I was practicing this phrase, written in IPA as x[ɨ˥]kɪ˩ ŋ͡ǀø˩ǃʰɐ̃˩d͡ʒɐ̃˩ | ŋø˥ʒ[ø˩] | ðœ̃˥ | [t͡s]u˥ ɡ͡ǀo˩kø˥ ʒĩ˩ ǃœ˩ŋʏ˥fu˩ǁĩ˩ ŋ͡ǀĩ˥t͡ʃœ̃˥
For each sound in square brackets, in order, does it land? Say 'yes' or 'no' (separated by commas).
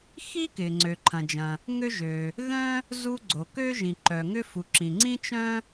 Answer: no, yes, no